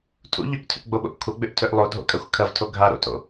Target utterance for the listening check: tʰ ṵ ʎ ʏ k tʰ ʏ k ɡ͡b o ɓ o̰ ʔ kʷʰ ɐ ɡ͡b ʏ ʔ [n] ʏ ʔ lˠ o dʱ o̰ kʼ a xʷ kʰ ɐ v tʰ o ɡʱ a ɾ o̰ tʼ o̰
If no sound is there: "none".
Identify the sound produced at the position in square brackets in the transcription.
tʰ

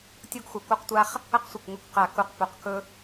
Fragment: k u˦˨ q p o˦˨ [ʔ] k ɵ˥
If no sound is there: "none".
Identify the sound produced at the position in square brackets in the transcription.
q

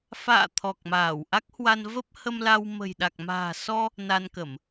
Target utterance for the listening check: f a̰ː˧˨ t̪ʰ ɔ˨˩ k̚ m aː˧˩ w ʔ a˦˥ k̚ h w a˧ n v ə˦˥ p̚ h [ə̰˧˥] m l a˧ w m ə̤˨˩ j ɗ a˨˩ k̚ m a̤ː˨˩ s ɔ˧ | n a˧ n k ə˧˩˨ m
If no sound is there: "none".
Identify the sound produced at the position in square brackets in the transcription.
ə˧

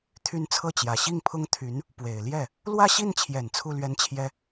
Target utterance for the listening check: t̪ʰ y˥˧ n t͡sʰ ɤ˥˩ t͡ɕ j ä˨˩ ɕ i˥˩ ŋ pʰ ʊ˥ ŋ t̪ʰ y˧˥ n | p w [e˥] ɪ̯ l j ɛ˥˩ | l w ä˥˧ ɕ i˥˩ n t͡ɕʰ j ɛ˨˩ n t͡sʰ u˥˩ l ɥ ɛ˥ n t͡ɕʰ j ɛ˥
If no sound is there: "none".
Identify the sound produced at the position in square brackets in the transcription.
e˨˩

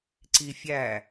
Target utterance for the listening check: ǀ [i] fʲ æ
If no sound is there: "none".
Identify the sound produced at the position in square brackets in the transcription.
i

